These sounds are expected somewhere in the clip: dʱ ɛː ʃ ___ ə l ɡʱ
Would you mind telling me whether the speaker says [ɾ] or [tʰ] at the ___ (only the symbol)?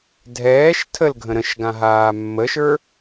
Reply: tʰ